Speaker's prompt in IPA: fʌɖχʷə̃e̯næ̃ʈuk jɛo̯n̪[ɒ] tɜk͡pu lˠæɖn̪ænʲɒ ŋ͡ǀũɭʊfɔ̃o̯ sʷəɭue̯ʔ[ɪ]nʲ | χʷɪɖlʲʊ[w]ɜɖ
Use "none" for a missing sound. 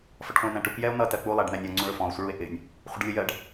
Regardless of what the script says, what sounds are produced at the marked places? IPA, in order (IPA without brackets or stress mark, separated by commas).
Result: ʌ, ɪ, j